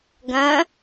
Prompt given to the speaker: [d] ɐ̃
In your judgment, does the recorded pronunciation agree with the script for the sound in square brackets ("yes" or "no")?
no